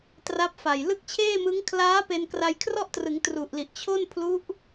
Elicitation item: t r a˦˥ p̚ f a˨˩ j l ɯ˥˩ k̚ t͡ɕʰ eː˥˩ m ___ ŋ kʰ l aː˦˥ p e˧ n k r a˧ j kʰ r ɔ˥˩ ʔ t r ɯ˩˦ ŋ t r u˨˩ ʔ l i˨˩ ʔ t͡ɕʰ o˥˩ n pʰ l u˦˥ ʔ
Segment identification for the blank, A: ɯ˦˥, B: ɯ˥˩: A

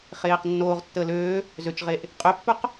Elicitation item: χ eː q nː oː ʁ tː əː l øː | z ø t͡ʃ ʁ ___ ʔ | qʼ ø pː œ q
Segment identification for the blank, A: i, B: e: B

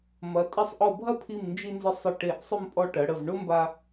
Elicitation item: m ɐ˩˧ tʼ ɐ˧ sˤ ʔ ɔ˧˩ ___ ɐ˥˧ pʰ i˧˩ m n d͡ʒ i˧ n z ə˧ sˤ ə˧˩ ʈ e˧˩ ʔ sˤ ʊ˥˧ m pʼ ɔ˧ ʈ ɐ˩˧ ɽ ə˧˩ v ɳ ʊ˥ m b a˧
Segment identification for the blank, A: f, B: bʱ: B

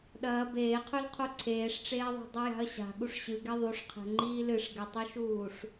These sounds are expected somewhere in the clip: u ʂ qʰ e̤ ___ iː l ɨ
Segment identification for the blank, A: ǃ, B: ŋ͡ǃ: B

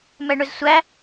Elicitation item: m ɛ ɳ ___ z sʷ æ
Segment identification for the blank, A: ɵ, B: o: A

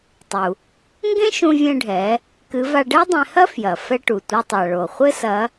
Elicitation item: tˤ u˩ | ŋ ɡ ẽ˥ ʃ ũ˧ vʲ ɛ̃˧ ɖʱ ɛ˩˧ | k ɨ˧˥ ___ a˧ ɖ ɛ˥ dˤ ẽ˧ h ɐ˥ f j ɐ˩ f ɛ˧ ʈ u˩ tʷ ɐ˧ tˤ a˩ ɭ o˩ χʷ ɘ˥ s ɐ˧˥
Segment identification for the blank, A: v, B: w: A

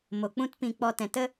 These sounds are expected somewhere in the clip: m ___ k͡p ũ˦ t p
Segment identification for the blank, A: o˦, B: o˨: B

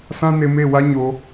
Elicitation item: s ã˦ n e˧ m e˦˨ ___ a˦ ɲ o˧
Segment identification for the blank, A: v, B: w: B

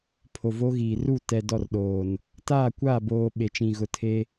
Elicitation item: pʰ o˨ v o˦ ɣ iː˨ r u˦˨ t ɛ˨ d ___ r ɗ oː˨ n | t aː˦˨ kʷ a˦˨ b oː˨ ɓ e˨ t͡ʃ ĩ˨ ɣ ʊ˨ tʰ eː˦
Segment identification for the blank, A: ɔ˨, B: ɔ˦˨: B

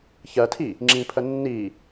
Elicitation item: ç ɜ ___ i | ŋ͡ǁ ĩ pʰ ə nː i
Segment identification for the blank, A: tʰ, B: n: A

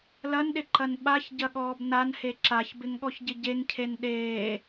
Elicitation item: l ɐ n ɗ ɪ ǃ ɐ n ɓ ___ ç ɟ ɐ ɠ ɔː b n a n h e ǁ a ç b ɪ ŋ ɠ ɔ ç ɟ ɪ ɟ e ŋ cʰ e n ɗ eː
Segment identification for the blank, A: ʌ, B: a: B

